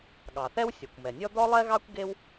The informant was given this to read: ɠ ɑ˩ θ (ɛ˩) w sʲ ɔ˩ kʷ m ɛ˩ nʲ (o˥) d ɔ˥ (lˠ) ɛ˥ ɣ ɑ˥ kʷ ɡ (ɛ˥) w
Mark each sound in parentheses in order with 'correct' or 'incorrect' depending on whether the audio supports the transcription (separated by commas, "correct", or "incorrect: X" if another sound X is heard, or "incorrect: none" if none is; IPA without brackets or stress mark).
incorrect: ɛ˥, incorrect: ɔ˥, correct, incorrect: e˥